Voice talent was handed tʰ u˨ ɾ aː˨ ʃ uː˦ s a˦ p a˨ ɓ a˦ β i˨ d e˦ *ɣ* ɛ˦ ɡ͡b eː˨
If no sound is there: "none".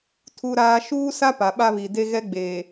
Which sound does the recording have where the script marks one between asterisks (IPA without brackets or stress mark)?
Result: ɣ